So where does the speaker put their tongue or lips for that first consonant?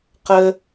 uvula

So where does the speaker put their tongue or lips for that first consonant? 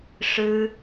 retroflex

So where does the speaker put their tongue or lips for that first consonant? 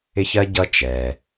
palate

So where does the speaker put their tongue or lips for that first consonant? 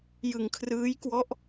palate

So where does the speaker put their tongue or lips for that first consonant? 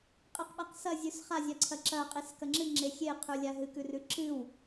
uvula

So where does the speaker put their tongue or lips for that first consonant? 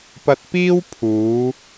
lips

